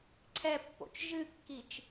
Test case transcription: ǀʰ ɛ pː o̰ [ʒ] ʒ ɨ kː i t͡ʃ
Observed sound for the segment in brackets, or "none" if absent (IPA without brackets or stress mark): t͡ʃ